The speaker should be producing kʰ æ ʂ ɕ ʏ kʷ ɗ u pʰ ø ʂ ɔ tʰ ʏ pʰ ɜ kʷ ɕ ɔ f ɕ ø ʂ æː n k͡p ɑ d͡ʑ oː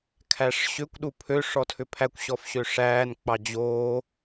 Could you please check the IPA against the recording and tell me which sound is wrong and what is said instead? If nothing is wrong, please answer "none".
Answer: ɜ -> æ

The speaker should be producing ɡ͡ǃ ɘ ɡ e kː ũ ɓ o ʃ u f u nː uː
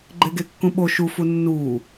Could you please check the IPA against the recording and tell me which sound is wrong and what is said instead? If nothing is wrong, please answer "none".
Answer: ɘ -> e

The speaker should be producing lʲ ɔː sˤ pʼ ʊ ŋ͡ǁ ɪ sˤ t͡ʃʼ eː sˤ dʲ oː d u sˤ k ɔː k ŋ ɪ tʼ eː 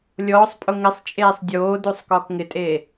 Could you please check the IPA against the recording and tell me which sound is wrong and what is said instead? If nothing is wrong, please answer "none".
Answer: ŋ͡ǁ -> ŋ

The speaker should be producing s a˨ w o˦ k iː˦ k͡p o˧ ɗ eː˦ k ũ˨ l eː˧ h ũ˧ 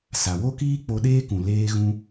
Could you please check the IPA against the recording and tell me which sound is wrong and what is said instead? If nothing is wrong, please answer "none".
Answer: h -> ɣ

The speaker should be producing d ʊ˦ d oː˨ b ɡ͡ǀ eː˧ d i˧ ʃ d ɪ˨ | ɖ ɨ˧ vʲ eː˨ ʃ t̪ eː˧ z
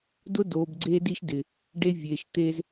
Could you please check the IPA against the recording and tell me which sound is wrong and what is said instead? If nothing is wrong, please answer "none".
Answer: ɨ˧ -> e˧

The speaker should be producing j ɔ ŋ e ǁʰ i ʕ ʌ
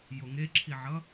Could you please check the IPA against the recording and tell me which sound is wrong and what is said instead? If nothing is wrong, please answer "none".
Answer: ɔ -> o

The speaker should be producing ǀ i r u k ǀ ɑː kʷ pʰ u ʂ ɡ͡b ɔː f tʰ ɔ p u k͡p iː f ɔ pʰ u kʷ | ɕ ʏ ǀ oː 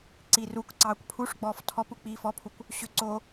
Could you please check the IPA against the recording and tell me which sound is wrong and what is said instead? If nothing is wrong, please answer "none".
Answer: none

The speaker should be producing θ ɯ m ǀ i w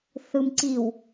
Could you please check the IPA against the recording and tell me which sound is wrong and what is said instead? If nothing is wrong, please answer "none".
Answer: none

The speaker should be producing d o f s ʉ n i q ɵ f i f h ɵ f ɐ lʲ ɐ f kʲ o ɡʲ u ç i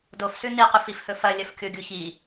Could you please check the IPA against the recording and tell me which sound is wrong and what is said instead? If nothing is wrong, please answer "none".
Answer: none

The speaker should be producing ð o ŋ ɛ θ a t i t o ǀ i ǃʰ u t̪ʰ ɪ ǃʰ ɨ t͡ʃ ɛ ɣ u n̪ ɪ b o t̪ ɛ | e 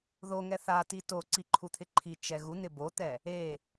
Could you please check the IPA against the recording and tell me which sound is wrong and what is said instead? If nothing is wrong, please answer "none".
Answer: ɨ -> i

